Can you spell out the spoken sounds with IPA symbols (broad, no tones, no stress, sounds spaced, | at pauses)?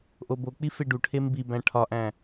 ʔ o b o k͡p i f e ɖ u ʈʰ e m b i b æ̃ ʈʰ ɒ ʔ æ̃